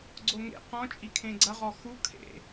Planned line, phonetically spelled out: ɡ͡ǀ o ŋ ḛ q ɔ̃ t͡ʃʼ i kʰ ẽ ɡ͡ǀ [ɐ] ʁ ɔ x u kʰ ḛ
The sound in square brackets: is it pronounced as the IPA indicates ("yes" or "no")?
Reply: yes